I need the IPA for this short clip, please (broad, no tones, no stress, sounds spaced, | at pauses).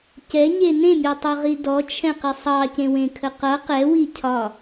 c ɛ ɲ e n ẽ mʲ o tˤ o ʁ i d ɔ t͡ʃʰ ɛ̃ q i sˤ ɑ c ẽ w ẽ kʰ ə q ʌ q ɛ w i cʰ ɒ